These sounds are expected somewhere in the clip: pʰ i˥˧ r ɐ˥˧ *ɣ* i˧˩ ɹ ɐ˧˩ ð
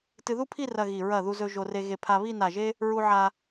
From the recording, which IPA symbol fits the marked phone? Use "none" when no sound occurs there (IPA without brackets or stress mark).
ɣ